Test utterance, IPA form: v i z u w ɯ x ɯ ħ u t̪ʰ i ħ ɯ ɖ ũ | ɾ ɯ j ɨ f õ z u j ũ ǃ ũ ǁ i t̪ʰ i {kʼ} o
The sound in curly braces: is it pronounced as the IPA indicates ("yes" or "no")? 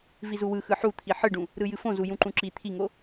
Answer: no